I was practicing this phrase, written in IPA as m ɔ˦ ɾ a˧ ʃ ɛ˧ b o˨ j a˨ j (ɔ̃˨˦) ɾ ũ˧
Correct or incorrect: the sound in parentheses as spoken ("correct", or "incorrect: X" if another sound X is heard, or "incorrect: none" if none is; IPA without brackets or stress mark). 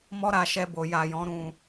correct